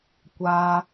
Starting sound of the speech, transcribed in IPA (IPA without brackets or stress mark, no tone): kʷ